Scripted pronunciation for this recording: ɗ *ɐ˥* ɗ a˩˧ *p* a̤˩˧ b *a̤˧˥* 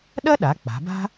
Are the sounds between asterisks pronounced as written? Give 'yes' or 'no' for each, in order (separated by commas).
yes, no, no